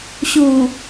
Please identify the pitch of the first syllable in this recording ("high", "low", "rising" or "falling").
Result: low